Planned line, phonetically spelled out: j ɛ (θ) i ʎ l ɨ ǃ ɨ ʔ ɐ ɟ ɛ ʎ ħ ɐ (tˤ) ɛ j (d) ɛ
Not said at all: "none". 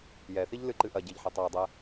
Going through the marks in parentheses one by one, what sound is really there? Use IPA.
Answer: θ, tˤ, dˤ

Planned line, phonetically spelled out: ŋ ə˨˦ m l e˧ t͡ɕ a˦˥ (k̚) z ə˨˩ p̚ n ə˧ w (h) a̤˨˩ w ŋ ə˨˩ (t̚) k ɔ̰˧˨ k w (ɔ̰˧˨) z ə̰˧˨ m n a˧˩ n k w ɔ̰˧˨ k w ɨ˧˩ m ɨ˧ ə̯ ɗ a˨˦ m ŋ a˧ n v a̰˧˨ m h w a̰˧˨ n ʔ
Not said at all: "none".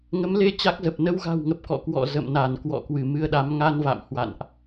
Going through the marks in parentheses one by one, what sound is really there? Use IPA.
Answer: k̚, ɣ, p̚, ɔ̰˧˨

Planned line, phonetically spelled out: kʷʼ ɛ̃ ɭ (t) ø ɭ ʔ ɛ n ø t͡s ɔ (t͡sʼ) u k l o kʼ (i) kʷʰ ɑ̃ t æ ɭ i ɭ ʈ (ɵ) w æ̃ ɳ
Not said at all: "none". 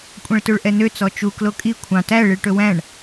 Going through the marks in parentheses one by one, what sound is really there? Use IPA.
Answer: t, t͡ʃ, i, ɵ

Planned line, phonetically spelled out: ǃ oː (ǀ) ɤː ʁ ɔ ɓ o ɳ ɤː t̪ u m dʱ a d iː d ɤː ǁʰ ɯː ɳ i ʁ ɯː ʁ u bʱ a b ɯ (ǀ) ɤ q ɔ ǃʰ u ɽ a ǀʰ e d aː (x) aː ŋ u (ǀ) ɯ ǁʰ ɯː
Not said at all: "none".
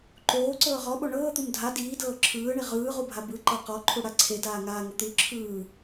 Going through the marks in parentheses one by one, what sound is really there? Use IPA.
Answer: ǀ, ǃ, ŋ, t̪

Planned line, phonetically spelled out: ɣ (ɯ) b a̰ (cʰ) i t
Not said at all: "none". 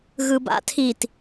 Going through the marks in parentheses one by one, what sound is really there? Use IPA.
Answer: ɯ, tʰ

